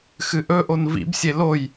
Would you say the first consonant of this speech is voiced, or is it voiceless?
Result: voiceless